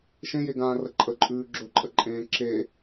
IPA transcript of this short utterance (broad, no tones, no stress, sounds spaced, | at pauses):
ʃ ẽ j e ɡ ãː r ə ǃʼ ə ǃʼ ʉː ɡ͡ǁ ɵ ǃʼ ə ǃʼ ẽː ǁ e